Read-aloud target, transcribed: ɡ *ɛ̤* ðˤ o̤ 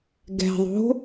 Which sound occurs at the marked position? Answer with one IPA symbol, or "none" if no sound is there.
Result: ɛ̤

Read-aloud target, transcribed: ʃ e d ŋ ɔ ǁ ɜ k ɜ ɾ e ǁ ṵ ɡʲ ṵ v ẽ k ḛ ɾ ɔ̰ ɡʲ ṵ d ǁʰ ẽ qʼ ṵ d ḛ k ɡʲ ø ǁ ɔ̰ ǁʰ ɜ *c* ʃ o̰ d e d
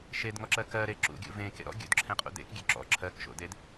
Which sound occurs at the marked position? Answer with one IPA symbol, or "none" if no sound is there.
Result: k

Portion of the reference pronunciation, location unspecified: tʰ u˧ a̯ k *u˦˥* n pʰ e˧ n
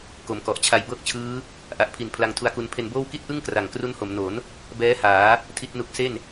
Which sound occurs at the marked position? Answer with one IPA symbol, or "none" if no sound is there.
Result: u˧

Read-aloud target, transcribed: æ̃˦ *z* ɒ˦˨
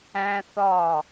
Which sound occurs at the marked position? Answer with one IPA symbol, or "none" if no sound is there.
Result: θ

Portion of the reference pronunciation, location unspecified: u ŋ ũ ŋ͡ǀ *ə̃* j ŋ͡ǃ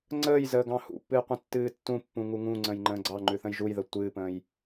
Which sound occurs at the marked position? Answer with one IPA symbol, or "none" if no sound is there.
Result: ə̃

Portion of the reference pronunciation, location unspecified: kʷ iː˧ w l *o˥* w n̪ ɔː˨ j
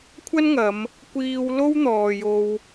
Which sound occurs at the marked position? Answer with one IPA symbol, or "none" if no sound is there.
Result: o˥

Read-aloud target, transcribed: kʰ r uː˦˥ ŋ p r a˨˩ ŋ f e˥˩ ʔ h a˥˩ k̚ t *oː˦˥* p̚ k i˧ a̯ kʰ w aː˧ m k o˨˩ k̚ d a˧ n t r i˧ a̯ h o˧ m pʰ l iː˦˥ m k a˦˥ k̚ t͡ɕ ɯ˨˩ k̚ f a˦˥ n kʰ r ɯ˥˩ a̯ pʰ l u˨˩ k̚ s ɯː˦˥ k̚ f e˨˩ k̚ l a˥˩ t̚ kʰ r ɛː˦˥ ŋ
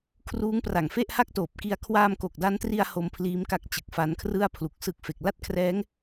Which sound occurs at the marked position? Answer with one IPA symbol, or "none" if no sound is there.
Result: oː˨˩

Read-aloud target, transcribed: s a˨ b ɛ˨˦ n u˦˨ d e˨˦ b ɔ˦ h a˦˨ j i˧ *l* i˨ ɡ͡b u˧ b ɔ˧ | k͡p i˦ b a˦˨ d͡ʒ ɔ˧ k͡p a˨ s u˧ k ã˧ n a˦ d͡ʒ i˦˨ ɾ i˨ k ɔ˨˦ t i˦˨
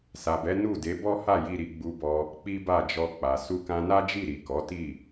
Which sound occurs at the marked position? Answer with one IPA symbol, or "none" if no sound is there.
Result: ɾ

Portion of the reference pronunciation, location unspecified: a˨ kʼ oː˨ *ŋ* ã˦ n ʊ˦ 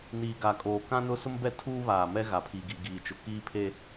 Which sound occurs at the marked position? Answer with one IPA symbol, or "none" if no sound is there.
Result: k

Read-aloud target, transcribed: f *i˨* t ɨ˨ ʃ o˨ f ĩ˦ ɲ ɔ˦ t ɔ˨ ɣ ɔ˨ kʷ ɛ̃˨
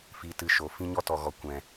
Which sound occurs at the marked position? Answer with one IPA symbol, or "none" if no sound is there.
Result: i˨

